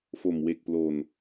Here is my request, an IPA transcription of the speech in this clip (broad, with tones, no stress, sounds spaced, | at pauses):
f o˨˩ m w e˨˩ k̚ p l o˨˩ n